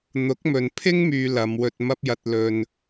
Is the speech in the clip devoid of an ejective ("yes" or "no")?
yes